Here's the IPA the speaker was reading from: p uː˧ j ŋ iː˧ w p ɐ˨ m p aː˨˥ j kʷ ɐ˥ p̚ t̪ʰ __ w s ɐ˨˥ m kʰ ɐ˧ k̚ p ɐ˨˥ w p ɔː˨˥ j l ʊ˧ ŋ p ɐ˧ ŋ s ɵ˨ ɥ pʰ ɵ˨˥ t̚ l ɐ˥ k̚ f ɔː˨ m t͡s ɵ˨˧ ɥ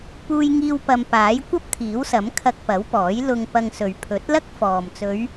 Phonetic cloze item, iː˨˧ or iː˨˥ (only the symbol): iː˨˥